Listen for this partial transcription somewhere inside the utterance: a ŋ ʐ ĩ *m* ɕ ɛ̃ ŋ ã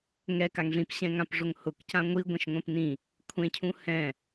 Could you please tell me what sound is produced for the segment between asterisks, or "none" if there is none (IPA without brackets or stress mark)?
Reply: p